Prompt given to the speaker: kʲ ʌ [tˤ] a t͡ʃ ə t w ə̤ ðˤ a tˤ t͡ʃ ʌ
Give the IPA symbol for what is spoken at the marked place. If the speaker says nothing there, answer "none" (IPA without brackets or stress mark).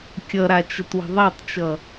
ɾ